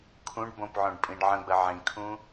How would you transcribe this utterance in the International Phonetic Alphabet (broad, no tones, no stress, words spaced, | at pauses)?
kʰũɖbõpʕõɖ pʼĩɖʕə̃ɡ͡bə ʕĩkʰũ